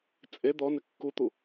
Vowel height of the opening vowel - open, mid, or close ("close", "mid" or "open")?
mid